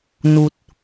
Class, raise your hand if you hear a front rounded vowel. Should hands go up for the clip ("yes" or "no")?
no